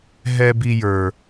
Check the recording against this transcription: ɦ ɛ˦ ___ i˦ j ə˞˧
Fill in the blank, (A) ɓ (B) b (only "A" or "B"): B